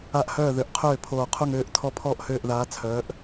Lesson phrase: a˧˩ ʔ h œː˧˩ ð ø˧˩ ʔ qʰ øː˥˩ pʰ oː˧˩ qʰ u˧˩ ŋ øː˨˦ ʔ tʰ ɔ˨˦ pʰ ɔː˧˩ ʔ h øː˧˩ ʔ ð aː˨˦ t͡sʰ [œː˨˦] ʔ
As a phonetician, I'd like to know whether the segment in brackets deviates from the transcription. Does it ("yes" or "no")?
no